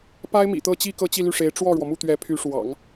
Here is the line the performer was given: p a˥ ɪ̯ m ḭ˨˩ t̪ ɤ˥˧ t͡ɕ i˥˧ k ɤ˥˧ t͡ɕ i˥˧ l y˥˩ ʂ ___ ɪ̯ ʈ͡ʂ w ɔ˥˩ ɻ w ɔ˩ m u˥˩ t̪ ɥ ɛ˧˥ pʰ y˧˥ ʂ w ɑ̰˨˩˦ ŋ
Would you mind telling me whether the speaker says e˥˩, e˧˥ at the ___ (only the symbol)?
e˧˥